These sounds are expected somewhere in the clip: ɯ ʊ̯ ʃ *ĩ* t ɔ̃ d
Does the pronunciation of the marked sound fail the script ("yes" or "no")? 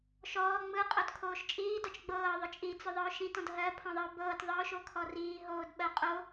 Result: no